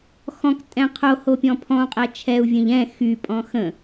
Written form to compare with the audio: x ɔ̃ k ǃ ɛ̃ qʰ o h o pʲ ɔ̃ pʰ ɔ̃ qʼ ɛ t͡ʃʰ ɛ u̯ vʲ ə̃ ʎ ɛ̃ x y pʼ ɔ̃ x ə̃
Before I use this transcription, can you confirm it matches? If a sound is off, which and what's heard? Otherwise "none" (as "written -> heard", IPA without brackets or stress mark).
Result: ǃ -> tʼ